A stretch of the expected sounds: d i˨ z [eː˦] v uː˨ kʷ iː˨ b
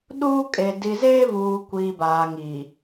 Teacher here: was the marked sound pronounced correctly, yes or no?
yes